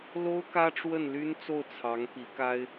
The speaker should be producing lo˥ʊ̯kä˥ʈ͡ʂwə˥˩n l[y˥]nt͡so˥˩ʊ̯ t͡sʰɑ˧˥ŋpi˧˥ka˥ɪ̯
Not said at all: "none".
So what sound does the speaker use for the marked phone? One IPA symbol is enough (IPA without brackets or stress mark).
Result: y˥